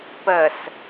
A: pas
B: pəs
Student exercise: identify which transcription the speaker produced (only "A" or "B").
B